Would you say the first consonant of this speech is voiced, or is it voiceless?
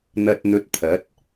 voiced